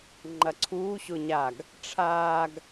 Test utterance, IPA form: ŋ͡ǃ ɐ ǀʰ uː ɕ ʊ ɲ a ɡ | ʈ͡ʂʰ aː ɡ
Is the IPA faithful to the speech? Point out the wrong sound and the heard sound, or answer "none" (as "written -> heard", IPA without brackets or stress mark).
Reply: none